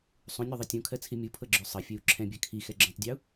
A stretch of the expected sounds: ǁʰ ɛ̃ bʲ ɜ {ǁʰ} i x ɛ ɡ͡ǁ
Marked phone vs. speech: incorrect: kʰ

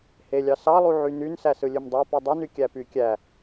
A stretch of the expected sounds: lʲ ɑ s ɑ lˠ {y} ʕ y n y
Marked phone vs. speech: incorrect: u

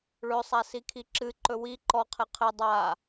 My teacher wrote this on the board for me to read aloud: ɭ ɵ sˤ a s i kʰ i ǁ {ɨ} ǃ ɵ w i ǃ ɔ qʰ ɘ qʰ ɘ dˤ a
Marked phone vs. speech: correct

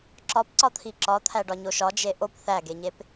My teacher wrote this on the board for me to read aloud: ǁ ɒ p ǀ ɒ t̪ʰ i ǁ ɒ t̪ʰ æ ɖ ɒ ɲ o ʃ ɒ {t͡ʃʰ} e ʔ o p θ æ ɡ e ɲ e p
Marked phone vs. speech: incorrect: d͡ʒ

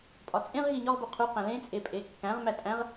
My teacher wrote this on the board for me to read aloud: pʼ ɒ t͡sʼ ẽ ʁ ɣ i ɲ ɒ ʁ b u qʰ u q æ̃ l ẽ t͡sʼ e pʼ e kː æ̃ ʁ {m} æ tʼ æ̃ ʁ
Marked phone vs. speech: correct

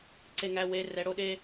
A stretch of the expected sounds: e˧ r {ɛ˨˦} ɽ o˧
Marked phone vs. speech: correct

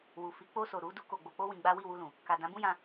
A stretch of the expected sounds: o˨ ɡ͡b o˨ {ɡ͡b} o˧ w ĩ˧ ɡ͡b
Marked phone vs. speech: incorrect: k͡p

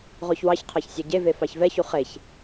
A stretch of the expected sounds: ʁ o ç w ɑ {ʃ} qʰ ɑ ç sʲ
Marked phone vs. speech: incorrect: ç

